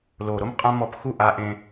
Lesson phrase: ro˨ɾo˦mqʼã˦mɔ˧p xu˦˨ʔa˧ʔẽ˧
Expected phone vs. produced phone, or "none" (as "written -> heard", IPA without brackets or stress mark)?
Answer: r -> l